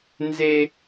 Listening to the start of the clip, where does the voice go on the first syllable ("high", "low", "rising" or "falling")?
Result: high